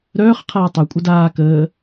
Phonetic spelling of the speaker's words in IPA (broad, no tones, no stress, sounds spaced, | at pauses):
ɾ œː χ qʰ aː tˤ œ kʷʼ ə d aː k əː